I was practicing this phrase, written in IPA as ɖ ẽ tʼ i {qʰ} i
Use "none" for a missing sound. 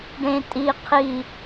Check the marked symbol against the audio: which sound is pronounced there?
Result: qʰ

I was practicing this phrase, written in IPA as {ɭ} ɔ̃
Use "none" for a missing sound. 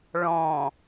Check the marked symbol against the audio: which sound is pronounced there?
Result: ɭ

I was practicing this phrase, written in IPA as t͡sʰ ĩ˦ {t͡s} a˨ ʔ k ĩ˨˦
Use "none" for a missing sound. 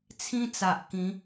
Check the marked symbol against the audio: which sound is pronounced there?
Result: t͡s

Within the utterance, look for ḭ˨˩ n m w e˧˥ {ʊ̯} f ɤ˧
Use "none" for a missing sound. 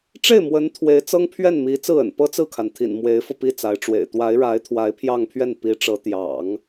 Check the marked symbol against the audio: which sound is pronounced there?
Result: ɪ̯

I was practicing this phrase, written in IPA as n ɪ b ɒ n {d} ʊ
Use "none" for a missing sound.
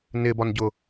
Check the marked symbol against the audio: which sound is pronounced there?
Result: ɟ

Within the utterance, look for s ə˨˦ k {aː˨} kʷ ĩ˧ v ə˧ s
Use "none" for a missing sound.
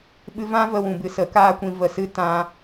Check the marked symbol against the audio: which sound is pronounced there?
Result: aː˦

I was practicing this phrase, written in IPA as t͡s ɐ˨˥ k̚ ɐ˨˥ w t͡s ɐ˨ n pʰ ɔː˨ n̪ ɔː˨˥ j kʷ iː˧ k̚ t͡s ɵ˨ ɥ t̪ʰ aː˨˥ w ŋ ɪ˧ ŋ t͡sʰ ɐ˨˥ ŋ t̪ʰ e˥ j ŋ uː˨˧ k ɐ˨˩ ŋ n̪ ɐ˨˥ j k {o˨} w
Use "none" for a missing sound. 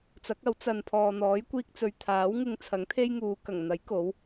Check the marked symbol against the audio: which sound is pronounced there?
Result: o˨˥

